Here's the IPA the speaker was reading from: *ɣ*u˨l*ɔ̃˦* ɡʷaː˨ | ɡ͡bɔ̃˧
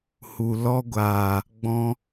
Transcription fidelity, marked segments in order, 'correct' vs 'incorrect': incorrect: h, incorrect: ɔ˦

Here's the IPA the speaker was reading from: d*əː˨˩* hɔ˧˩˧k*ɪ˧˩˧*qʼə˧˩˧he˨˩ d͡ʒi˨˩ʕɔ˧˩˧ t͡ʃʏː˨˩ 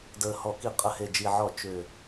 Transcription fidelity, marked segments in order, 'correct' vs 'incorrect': correct, incorrect: i˧˩˧

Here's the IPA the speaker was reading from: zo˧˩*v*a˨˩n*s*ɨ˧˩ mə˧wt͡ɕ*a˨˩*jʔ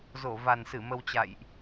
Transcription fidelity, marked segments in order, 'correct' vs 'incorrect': correct, correct, incorrect: a̰˧˨

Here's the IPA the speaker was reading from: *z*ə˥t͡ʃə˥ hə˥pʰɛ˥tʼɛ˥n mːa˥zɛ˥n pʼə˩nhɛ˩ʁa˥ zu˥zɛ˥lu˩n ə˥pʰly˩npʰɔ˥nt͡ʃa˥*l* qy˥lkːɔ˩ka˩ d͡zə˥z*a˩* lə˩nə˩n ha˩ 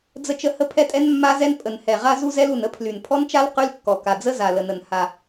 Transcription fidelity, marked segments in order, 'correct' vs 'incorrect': incorrect: d͡z, correct, correct

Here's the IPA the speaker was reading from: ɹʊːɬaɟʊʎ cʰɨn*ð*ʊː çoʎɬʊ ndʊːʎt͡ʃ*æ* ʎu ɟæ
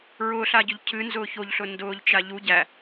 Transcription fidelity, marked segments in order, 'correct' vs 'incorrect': incorrect: z, incorrect: a

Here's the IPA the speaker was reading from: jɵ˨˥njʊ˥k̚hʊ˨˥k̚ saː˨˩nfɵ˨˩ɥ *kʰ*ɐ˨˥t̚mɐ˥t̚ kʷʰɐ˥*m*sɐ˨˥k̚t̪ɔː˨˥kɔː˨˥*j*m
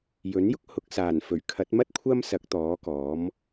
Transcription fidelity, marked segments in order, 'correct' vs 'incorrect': correct, correct, incorrect: none

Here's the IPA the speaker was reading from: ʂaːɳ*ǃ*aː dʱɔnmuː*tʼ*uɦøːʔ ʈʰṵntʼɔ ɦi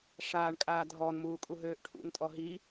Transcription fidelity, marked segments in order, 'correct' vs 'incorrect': incorrect: kʼ, incorrect: kʼ

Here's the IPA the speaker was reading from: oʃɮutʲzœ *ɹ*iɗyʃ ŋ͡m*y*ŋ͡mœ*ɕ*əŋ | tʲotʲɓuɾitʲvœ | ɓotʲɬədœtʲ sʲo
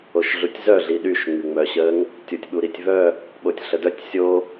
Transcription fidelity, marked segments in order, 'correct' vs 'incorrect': incorrect: ɮ, correct, correct

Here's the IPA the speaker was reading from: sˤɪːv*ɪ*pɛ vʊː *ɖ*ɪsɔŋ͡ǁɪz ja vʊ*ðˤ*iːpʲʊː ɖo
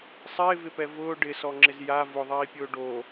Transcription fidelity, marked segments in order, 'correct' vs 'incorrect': correct, correct, correct

